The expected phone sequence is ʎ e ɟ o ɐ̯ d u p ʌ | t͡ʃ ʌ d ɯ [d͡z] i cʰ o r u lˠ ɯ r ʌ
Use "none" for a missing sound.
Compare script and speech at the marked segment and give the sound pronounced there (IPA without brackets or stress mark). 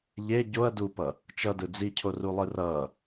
d͡z